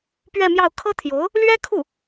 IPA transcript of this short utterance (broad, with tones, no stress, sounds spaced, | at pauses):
p ɥ ɛ˥˧ m j ɑ˥˩ ʊ̯ kʰ ɤ˥ t̪ʰ j o˧˥ ʊ̯ | l ɥ ɛ˥ kʰ u˥˩